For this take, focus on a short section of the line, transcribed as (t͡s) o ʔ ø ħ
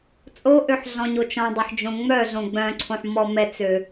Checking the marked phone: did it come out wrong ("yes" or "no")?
yes